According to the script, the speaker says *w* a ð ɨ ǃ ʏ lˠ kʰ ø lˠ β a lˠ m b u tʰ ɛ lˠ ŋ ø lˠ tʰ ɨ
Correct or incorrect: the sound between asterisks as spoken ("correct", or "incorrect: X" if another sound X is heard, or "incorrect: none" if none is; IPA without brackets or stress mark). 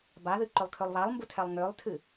incorrect: b